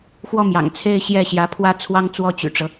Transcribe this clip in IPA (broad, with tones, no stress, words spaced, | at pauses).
xwɔ˥˩mjɑ̰˨˩ŋt͡sʰe˥˧ɪ̯ ɕjɛ˥˩ɕjä˧˥pʰwä˥ t͡sʰwɑ˥ŋt͡swɔ˥˩t͡ɕy̰˨˩ʈ͡ʂɤ˦